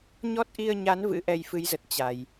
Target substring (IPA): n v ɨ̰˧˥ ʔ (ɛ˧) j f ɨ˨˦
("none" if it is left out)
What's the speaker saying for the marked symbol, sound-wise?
ɛ˧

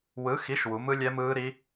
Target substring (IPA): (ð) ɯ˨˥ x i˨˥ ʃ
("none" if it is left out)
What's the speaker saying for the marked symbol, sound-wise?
w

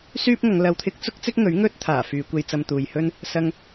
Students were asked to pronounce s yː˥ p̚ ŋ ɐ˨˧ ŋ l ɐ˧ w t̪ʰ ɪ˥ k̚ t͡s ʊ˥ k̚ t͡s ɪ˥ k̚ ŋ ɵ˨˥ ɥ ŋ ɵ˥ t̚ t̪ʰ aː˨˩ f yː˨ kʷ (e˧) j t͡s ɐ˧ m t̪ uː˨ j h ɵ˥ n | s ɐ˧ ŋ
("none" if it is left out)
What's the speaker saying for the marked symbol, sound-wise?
e˧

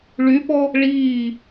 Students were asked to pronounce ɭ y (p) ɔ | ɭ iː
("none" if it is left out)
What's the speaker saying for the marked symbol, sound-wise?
p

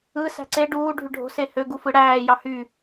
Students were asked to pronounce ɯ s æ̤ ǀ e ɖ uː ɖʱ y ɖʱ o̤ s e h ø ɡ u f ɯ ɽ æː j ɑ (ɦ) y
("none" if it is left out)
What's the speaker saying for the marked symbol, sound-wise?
h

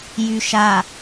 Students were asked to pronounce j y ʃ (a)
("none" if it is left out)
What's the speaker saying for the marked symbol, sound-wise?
a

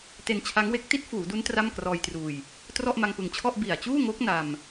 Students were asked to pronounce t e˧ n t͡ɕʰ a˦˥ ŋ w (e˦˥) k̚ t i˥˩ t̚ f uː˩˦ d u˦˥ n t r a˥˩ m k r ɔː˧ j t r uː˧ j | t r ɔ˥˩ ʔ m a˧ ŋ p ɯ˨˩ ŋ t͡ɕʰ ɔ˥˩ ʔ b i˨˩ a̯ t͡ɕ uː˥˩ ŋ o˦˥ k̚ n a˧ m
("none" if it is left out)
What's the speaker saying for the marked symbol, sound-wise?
e˦˥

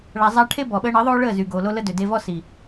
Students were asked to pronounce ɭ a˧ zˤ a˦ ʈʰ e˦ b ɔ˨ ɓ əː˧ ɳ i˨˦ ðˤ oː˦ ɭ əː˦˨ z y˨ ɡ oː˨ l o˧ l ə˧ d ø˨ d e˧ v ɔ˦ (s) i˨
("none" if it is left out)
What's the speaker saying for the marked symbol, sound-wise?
s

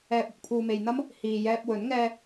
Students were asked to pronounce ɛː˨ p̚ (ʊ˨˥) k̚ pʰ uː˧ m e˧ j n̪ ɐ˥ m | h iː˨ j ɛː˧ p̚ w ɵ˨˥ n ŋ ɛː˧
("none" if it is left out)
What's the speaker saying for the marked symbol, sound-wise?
ʊ˨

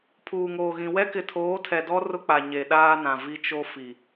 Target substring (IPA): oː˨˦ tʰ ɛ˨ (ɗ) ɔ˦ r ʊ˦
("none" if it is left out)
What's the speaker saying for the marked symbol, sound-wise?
d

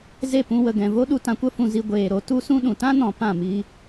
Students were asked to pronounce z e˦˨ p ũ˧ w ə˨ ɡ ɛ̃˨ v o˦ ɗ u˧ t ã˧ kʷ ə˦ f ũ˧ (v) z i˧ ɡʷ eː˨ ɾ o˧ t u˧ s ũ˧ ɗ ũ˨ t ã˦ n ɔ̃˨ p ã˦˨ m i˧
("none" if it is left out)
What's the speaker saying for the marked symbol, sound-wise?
none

